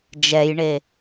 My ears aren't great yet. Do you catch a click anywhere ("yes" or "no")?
no